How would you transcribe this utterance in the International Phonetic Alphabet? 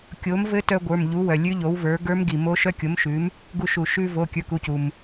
kʲo˩˥mvɘ˦˥tœ˧ ɡʷə˞˩˧˩mʎu˩˥ wœ˩lʲʉ˦˥ʎo˩˥wvə˞˩˥ ɡə˞˦˥mɡi˩mo˦˥ ʃœ˦˥kʲo˩˥mʃʉ˩˥m | ɡu˧ʃu˩ʃʉ˧vo˩˧˩ kʲə˞˩˥ku˩˧˩cu˩m

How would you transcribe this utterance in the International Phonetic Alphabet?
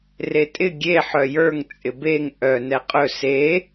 retʼɪ ɡʲe ħœjə˞ŋ t͡sʼɪbeŋ ʔœ nɛqʼɵ se

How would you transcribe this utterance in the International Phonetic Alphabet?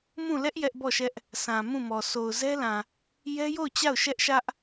mũ˦˨ lɛ˦ʔ jɛ˦ʔbɔ˦˨ʃɛ˦ʔ | sʰã˨ mũ˦˨mɔ˨ so˨ʊ̯zɛ˦lã˨ | jɛ˦jo˦˨ʊ̯t͡ɕa˦˨ʊ̯ ʃɛ˦ʔʃä˦ʔ

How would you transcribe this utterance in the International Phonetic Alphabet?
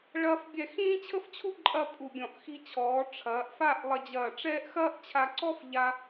ɭɐː˥fbʲɛ˥˧ xĩː˥t͡ɕʰə˥ft͡ɕʰu˥ ǃʼɐ˥˧pʼu˧˩bʲɔ̃˧˩ʔ xi˧t͡ɕʰɔː˩˧ ʈ͡ʂʰɐː˩˧ʔfa˥˧ʔ lˠɐ˧d͡ʑɐː˧˩ʈ͡ʂɛː˥ʔ xɐː˥ʔt͡ɕʰa˧ǀɔ˥f ʎa˧

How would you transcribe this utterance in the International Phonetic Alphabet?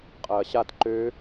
qʼɐːɕat ǃø

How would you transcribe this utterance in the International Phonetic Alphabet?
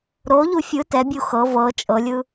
ɾoʎu fʲɯ tɛbʲu xɤ vɤ t͡ʃʼɤlʲɯ

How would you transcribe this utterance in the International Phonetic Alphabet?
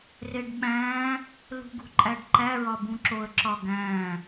reɖɓæ̃ː | lṳɡṳǃʼæɖǃæ ɹɒbũǁoə̯ ǁɒɡæ̃ː

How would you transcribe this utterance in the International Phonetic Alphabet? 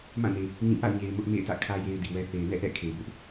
mã˦˨ne˨ | ɲĩ˦˨ ʔa̰˦˨ʊ̯ɲe˨ɪ̯ mʊ˦ʔmḛ˦˨ɪ̯tä̰˦˨ kʰä˦ je˦ɪ̯di˨wɛ˦ θe˨ɪ̯nɛ̰˦˨ʔɛ̰˦˨ kʰe˨ bʊ˦ʔ

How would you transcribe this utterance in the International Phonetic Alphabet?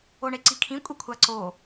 oɳeǀikʰĩ kʷʼekʷʰaǀo

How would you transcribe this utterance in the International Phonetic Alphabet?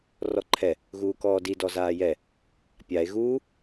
rɔǃʰɛ | ɣuːkɔːdi dɔzaːjɛ | pʲae̯ ɣuː

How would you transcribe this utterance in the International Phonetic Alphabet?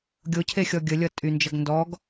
ɡʲocʰe xʲɔɡʲəlʲʌ tʼynd͡ʒʌɡ ndɔɡ

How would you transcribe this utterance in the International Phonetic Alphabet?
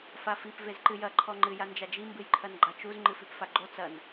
fafip vezǃɨjɐ ǃʰɔŋ͡ǃɨ jand͡ʒad͡ʒi mbɨjǃʰɐnɡ͡ǃat͡ʃuz ŋ͡ǃɨfipfaɡ͡ǃo t͡sɐn

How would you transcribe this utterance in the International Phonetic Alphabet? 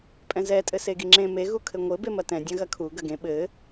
pʼɛ̃zɛ tʼɘseɡiŋ͡ǁẽ me ɣukʰɘŋʷɘ bemɐtɛ̃ dʲɐ̃ɣɐkʰu ɡɐɡẽ ɓɘ

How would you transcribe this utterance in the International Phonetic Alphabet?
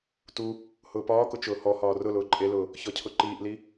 tu | hʊːpɒːkʊ t͡ʃʊːhɔhɒː rʊlʊː ǃʼelʊː | çɔcʰʊǃiːʔli

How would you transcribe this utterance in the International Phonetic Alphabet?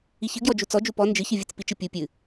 içɨɡjɔ d͡ʒut͡sɔ d͡ʒupɔ nd͡ʒɨçɨvʲɨt͡s pit͡ʃɨ pʲu pʲɨ

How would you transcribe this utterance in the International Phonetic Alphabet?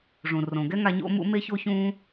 ʐũ˩ rõ˩ɡɛ˥ŋa˧ ɲo̰˧mṵ˧ me˥ ço˥çũː˥

